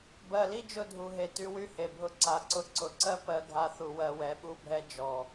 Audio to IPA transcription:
b ɜ˨ l i˦ d͡ʒ ʊ˧ dʱ u˨ ɦ e˨ t y˧ w y˦ h e˨ bʱ ʊ˧ ǀ a˨ ǀ ʊ˧ ǀ ʊ˨ ǀ ɜ˦ p ɜ˧ ɡʱ a˧ θ u˨ w ɜ˧ w ɛ˨˦ ɓ u˦ bʱ ɛ˦ d͡ʒ ɔ˨

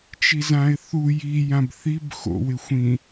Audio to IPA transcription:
t͡ʃ i z ã ɪ̯ θ u j i j ã b θ i b x o̰ w ɪ xʷ ĩ

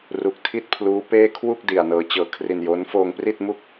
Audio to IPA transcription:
r u˨˩ k̚ tʰ i˦˥ t̚ pʰ l uː˦˥ p eː˥˩ kʰ w u˥˩ k̚ d i˧ a̯ n ɤː˦˥ t͡ɕ ɤː˧ kʰ r i˧ n j oː˦˥ n f oː˧ ŋ p r i˥˩ t̚ m u˥˩ k̚

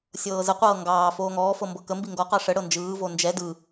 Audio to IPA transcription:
sʲ ɤː z ə qʷ ɤː ŋ ɡ ɑː f oː ŋ ɔː f ɤ m b ɤ k ə m b i ŋ ɡ ɔ q ɑ ʂ ə ɽ ɤ n d͡ʒ ɯː v o n d͡ʒ ɛ d ɯ

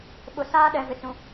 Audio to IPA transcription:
ɓ ʊ˨ s aː˦ ɗ ɛ˨ v ɪ˨ t͡s ũ˨

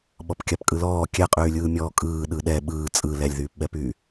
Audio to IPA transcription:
ɓ ɔ p kʲ a p kʼ ɯ l ɔː kʲ ɛ qʼ yː lʲ ɯː mʲ ɔː kʼ ɯː ɗ ɯ ɗ ɛ ɓ ɯː t͡sʼ ɯ l ɛ lʲ ð yː p ɓ ɛ p yː

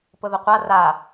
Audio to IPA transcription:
p ʊ ð ə qʷ a r a

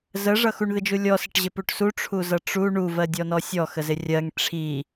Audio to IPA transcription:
z ə ʐ ʌ x u ɳ ð ɪ d͡ʒ u lʲ ɔ s ɪ ʈ ʑ ɪ p u ʈ s u ʈ͡ʂʰ u z ʌ ʈ͡ʂ u ɳ u v ɜ dʲ ɔ n ɔ sʲ ɔ x ə z ɪ rʲ ɜ ŋ ʈ͡ʂʰ i

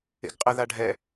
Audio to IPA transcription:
ḛ ɡ qʼ ə ð a ɖʱ ɛ

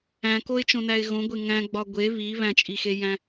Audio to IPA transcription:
æ̃ k o ɪ̯ t͡ʃ õ n æ ɪ̯ ɣ õ ɡʷ e ŋ æ̃ ɡ͡b ɒ ɡʷ e β i β æ̃ t͡ʃʼ i x e j æ̃

